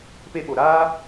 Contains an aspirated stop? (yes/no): no